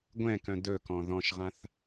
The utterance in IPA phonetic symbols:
ɡʷɛ̃kœ̃ dɵkɔ̃ ðɔ̃ʃʁãθ

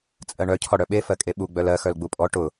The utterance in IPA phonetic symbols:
t͡sʼɜɳœ cʰɔɽœɓe fɜkʼeɓu ɡ͡bœlɜ xœlɡ͡bupʼɔ ʈʊ

